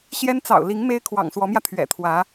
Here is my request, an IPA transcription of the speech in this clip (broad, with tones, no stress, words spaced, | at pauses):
ɕjɛ˥n t͡sɑ̰˨˩ʊ̯li˧˥ŋ me˥ɪ̯ kʰwɑ̰˨˩ŋswɔ˧˥mjä˧ t̪ʰɥɛ̰˨˩t̪ʰwä˧˥